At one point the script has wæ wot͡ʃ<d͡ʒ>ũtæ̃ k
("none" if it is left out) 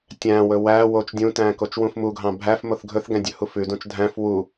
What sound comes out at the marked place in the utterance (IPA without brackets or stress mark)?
dʲ